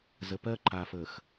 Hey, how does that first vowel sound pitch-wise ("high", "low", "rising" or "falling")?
low